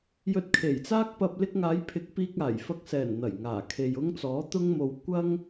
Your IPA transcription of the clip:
j ɵ˧ t̚ kʰ e˨˩ j t͡s aː˥ k̚ p ɐ˧ p̚ l ɪ˧ k̚ ŋ aː˨˧ j pʰ ɪ˨˥ k̚ p iː˧ k̚ aː˨˩ j f ɐ˧ k̚ s ɛː˨˩ n n̪ ɐ˨˩ j ŋ aː˨˩ kʰ e˨ j ʊ˥ ŋ t͡s ɔː˨˥ t̪ ʊ˥ ŋ m o˧ w kʷ ɐ˥ ŋ

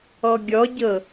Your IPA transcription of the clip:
ɔ ɡʲ ɔ ɟ ɤ

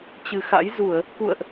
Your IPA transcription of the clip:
t͡ɕ ɨ˨˩ x a̰˧˥ j z u˧˩˨ ə̯ | k ṵ˧˨ ə̯ ʔ

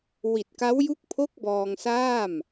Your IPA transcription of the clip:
w i˨˩ t̚ k a˦˥ w j u˦˥ k̚ pʰ o˦˥ k̚ b ɔː˧ ŋ s aː˥˩ m

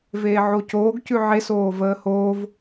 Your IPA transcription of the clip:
v eː ʕ o c oː ɡ c ʉ ʕ e s oː v əː h oː v

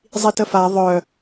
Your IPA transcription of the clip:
zˤ i t ə f a ðˤ œ

